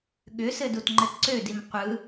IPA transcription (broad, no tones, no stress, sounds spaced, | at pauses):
ɠ ʏ s ɘ d u t ŋ͡ǃ ɘ t ǀ ø d i m qʷ ɯ